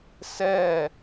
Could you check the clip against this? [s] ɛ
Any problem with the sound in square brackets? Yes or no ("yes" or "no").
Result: no